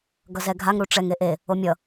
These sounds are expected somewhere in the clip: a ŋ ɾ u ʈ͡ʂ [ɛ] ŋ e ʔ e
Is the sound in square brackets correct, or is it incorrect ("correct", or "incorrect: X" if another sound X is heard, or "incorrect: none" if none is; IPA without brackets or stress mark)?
correct